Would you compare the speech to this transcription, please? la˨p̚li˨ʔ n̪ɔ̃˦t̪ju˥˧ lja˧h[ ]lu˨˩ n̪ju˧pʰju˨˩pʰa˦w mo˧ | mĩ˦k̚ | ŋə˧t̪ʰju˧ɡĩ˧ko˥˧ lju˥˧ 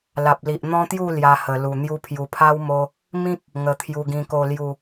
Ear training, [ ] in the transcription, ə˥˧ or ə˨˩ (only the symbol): ə˨˩